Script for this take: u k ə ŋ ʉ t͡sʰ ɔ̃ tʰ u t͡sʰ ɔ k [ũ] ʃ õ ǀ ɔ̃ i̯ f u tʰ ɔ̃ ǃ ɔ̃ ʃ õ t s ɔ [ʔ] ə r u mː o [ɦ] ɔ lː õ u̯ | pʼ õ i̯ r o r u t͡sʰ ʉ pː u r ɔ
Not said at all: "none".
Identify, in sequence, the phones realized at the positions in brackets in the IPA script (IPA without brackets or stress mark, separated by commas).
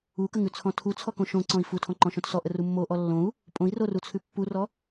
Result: õ, ʔ, ʔ